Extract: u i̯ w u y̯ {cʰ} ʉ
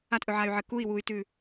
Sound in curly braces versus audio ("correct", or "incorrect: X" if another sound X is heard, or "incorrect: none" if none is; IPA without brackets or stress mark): incorrect: t